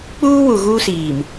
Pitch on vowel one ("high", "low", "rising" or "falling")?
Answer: high